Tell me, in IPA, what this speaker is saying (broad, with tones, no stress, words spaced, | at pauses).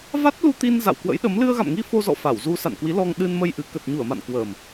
va˦˥t̚ lu˧t̪i˧n za̰˧˨wkwə̰˧˥jɗə˨˦m lɨ˧ə̯ɣa̰˧˨mŋi˧ fo˧zɔ̰˧˨ fa˧˩wzu˧ sa̰˧˨n kwi˨˦lɔ˧ŋ ɗɨ˧nmə˧jʔɨ˨˩ kə˨˩t̚ɲu˧˩ə̯ma̰˧˨n kwəː˨˩m